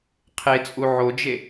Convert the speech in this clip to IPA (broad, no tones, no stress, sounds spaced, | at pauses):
qʰ e t͡sʼ u ʕ o d͡ʒ e